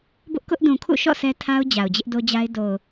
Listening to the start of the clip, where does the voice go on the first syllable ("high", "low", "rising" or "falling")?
high